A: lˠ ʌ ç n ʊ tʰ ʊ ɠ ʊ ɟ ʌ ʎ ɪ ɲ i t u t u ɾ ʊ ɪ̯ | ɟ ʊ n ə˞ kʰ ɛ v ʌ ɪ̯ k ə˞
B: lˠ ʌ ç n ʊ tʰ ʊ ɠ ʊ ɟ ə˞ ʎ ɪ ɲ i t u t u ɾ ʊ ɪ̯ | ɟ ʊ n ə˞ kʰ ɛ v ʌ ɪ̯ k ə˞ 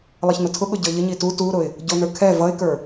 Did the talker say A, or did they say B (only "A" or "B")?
B